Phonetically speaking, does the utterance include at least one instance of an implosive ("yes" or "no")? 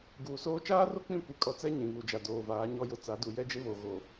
no